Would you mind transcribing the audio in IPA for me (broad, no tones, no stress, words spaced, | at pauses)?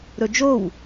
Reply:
ɾɵd͡ʒow